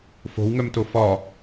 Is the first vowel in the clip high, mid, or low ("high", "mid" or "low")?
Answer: mid